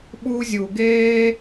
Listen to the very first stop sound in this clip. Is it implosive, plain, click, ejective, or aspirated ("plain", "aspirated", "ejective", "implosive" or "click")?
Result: implosive